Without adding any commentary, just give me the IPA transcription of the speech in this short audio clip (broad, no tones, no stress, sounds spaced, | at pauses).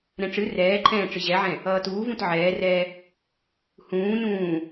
ɾ ɛ̃ ʈ͡ʂ ɨ r ɛː ǃʰ ɛ̃ː ʈ͡ʂ ɨ ʑ ɛ ʕ ɛ̃ | ʌː t uː v ũ t ʕ ɛː r ɛː | h ũː n ũː